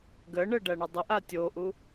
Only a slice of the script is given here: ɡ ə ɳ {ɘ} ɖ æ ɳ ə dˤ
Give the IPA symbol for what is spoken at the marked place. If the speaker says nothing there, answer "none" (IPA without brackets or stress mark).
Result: ɘ